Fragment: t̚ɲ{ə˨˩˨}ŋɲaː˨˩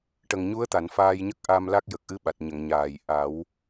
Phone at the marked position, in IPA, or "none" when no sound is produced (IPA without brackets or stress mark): ə˨˩˨